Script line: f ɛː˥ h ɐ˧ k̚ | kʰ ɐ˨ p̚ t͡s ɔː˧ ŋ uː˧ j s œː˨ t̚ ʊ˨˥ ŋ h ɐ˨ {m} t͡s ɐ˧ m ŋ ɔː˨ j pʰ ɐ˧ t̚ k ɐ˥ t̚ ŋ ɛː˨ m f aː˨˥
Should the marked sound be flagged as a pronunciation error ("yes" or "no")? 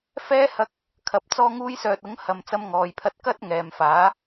no